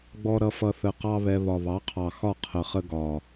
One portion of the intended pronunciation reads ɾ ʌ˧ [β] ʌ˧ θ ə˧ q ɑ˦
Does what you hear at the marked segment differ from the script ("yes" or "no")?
yes